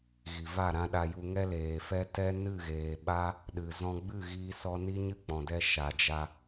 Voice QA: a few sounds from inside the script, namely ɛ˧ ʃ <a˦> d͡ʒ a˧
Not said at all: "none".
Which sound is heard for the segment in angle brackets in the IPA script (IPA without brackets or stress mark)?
a˨